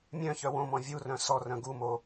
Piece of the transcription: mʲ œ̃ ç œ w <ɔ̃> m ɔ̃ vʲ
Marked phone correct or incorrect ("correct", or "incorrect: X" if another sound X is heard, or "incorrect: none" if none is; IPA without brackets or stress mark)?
incorrect: õ